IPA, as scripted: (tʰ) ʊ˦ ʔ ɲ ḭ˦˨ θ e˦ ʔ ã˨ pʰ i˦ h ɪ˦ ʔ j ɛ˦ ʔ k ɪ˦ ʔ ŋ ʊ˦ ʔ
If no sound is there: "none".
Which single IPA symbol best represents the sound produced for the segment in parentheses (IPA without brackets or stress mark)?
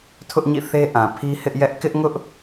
tʰ